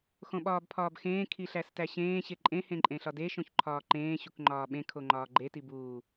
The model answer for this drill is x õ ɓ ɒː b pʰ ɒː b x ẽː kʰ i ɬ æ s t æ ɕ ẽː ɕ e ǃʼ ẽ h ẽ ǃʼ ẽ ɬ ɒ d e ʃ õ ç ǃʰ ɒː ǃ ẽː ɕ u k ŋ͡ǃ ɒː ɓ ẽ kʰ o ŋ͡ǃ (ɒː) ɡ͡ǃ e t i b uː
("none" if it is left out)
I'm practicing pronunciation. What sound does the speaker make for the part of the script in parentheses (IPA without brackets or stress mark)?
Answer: ɒː